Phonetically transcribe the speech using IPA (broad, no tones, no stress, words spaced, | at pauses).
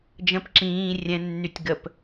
d͡ʒə̃p ǁĩː rʲɛ̃nːytʲ ɡəp